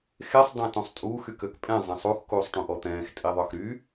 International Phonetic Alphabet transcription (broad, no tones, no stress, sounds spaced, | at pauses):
x e sˤ dˤ ã t ũ sˤ tʼ uː x y k ø k pʼ ɛ̃ zˤ ɛ̃ sˤ u x k uː sˤ ʈ ũ ʔ ɔ t̪ ɛ̃ː x tʼ i ðˤ œ x ɾ y